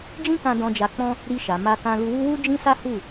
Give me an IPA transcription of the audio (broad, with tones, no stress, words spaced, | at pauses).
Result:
d͡ʒĩ˦kã˧ dɔ̃˧d͡ʒa˧k͡pɔ̃˦ | ɾi˧ʃa˨ ma˧kã˧ lu˧wu˦ wu˦ d͡ʒĩ˦sa˦ hu˦˨